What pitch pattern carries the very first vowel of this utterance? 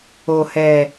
low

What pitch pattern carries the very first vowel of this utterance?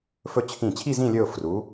falling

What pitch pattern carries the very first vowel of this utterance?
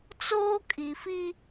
high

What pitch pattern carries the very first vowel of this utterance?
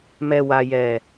low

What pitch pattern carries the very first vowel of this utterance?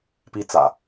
high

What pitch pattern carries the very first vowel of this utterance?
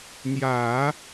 low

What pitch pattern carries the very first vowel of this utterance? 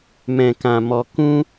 low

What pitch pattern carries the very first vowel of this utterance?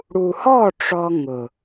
low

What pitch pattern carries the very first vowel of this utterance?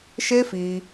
high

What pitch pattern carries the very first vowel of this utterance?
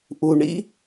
low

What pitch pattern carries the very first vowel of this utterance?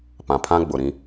low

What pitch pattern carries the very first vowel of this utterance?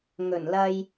low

